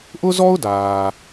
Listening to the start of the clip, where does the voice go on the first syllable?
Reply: high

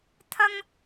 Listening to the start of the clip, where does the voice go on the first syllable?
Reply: high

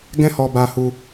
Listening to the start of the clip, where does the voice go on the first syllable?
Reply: high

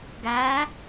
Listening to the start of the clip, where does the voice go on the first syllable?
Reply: rising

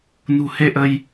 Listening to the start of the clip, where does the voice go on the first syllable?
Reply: low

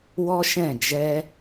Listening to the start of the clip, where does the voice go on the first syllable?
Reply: high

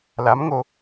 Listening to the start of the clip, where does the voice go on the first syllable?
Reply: rising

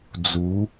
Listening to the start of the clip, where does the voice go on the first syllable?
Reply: rising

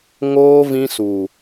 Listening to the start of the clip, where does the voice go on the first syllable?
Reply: high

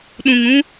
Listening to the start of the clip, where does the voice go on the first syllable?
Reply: low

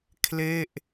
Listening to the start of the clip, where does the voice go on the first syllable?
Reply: falling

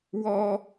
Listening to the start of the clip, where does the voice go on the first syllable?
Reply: high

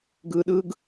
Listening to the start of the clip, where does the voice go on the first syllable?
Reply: low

